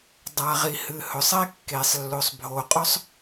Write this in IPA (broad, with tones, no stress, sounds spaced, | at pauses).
dˤ a˨ ʁ i˨ h ɨ˨ h ɵ˨ sˤ e˦ kː e˨ sˤ lː o˨ sˤ bʱ o˨ qʼ ɵ˦ sˤ